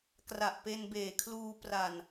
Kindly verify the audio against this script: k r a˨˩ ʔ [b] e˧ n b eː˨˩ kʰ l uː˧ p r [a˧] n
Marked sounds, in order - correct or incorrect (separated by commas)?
incorrect, incorrect